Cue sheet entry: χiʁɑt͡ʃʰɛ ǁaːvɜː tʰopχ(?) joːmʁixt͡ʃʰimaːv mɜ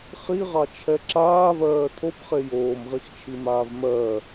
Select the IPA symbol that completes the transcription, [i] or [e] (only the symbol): e